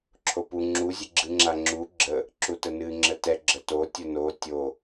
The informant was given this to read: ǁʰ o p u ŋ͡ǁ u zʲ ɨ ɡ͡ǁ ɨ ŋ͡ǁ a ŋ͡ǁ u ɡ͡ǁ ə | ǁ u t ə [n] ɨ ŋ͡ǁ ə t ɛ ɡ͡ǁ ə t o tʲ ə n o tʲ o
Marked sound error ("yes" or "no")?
no